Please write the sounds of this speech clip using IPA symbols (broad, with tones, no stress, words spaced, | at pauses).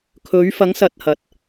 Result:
kʰɵ˨˧ɥ fɐ˨˧ŋsɐ˨t̚hɐ˨t̚